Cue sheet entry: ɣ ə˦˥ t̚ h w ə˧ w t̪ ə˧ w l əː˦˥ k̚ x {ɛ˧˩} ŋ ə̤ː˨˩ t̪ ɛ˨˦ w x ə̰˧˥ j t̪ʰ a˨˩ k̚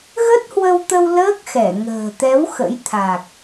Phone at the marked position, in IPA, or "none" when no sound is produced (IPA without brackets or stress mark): ɛ˧˩